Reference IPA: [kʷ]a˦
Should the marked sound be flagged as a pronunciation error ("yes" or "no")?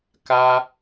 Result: yes